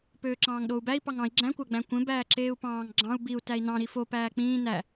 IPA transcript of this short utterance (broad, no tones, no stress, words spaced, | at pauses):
pøːǁɑ̃ːŋɗou̯bæi̯ pɑŋɑ̃i̯ ɡ͡ǁæ̃ kʷæɡ͡bæ̃kʷẽ bæːǁeːu̯pɑ̃ːŋ ɡ͡ǁɑ̃u̯ biu̯ tæi̯nɑ̃ ɾifo pæːk͡pĩː næ